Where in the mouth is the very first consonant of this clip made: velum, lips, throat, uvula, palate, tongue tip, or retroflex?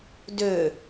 tongue tip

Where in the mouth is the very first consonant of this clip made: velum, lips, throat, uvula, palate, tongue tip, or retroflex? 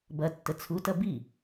lips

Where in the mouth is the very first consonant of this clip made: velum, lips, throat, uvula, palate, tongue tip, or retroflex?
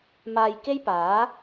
lips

